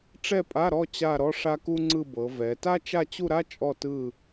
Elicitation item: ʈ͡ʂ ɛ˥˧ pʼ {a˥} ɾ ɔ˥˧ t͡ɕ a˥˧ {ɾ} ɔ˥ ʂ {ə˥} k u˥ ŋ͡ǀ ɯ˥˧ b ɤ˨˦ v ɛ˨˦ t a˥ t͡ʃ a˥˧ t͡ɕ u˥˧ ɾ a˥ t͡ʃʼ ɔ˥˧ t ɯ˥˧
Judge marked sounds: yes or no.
no, yes, no

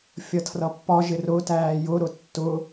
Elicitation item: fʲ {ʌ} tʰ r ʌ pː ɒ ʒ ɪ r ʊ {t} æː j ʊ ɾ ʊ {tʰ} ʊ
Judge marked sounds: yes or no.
yes, yes, no

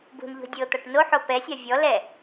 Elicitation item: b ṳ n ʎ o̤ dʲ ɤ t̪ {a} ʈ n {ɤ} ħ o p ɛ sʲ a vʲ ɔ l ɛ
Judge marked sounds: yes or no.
yes, no

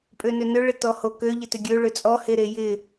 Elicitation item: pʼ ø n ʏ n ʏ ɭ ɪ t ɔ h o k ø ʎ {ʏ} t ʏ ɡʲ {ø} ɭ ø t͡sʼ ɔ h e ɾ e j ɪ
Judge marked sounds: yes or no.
no, yes

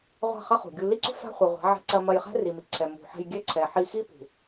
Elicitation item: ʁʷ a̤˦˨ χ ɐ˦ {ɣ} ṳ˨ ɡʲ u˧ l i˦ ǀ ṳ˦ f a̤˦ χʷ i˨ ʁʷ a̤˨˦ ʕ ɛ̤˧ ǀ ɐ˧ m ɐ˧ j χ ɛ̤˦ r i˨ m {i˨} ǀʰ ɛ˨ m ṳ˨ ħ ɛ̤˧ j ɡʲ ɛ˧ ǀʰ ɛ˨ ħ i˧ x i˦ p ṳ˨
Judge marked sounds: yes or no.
no, yes

